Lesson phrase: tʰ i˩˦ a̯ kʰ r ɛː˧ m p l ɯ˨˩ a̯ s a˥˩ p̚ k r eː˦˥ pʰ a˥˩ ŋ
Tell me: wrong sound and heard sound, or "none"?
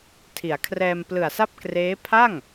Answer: none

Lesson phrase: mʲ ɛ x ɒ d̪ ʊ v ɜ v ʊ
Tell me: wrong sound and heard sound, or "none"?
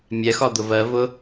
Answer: none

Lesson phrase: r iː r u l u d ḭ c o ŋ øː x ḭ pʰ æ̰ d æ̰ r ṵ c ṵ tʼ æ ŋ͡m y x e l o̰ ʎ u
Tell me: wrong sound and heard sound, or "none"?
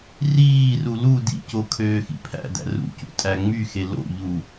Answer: ŋ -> kʰ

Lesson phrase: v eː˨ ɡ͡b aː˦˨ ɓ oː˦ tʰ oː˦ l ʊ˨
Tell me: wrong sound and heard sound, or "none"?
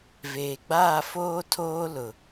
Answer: ɓ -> f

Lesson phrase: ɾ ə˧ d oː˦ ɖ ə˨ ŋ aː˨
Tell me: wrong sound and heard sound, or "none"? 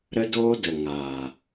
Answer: ɖ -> d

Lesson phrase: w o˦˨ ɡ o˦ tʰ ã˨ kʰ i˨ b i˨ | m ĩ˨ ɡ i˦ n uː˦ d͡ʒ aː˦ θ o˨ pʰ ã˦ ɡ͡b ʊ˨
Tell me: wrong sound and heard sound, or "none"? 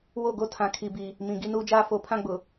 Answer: θ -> f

